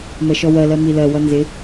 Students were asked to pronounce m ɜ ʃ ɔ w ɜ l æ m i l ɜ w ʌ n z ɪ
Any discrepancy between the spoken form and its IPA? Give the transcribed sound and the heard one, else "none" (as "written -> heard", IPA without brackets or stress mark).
æ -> ɜ